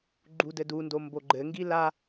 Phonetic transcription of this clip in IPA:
ɡ͡ǃ u d ɘ d u n d o m b o ɡ͡ǃ ɘ ŋ ɡ i l a

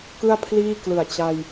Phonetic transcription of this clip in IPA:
k ɯ˥˩ a̯ pʰ l iː˥˩ k l ɯ˨˩ a̯ t͡ɕ a˧ j

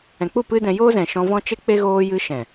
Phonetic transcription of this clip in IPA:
ɛ̃˨ k͡p u˦˨ p ɨ˦ d ɛ̃˧ j oː˦ z ɛ̃˨ ʃ ɔ̃˧ v ɔ̃˦ t͡ʃ e˦ k͡p e˦ ɣ oː˧ j ɨ˧ ʃ ɛ̃˨

